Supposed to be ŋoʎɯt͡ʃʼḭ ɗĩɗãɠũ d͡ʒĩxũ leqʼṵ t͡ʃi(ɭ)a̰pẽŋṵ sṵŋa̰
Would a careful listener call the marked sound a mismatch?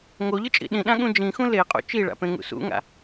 no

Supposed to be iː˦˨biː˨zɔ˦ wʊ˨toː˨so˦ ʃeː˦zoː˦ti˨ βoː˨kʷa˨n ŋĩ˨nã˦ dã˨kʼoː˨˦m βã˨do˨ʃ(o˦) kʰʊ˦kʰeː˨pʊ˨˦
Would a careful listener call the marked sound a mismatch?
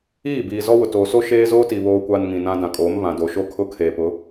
no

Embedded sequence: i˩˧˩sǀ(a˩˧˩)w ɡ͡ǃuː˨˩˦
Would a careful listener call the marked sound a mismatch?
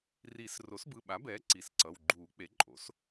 yes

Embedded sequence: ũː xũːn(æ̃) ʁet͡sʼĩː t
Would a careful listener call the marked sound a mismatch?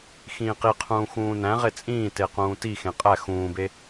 no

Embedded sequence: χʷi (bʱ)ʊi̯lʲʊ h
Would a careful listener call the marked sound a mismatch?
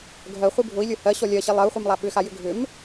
no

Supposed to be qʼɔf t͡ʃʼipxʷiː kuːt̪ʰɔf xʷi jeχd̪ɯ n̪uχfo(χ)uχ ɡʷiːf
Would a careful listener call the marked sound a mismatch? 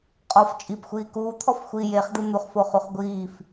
no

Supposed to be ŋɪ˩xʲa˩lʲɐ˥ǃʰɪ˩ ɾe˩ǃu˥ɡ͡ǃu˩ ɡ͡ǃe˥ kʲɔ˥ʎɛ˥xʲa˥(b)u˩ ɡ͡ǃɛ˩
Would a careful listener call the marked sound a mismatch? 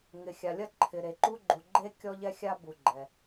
no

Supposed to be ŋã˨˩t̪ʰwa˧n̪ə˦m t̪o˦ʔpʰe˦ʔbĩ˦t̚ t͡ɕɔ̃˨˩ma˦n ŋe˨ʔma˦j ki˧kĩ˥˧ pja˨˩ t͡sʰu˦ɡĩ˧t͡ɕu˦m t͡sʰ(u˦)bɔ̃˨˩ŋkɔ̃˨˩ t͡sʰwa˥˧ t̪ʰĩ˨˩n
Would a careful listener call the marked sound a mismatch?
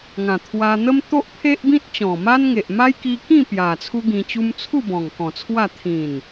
yes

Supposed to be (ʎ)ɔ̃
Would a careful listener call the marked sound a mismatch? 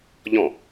no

